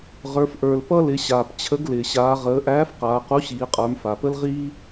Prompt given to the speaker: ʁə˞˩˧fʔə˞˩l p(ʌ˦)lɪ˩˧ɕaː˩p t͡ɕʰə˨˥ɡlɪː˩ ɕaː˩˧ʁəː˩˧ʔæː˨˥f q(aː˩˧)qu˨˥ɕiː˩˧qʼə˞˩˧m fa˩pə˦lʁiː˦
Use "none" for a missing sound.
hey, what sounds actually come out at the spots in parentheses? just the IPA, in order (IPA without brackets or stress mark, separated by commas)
ʌ˦, aː˩˧